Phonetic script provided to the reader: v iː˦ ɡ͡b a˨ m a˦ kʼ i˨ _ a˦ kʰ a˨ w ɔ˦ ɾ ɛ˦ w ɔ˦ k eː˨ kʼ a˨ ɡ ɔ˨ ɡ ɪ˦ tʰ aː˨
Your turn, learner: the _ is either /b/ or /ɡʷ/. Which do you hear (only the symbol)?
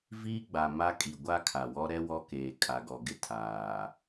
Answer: ɡʷ